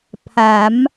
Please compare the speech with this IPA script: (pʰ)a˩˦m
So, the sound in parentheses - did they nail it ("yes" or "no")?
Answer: yes